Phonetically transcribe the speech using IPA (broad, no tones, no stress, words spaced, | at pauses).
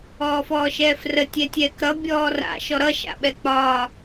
ɔːfɔːʃɛːfrə tʲɛtʲɛːkɾʌ bʲɔːra̰ ʃɔɾʌ ʃa̰ɓɛk͡pɒː